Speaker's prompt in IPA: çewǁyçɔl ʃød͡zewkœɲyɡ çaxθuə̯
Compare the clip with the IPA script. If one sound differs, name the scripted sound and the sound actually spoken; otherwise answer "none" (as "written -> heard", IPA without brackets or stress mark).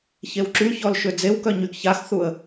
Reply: none